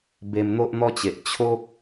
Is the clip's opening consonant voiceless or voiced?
voiced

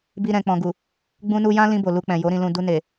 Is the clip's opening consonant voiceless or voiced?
voiced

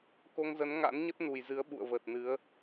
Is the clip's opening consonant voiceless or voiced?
voiceless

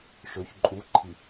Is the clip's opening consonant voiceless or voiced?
voiceless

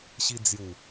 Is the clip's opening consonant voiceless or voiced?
voiceless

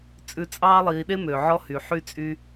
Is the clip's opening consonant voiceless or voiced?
voiceless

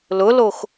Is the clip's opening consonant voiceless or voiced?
voiced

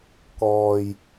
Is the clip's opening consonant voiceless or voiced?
voiceless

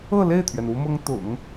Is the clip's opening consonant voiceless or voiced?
voiced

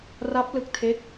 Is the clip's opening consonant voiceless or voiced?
voiced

